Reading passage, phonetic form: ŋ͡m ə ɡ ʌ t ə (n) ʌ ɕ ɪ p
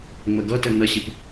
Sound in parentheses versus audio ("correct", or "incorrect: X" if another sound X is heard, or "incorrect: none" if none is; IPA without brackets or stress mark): correct